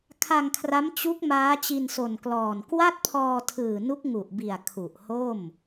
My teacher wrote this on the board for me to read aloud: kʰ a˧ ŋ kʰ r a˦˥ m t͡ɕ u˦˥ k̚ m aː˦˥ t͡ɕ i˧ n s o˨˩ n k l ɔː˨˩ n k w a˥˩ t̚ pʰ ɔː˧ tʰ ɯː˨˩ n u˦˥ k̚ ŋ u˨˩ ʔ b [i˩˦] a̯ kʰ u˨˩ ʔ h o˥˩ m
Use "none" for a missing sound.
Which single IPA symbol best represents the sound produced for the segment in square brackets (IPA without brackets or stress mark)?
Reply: i˨˩